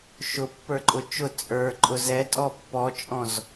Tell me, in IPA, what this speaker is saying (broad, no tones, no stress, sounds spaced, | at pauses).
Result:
ʃ ʊ pː ə˞ ǃʼ ʊ t͡ʃ ʊ t͡sʼ ə˞ ǃʼ ʊ z ɛ tʼ ɔ pː ɔ t͡ʃʼ ɔ̃ z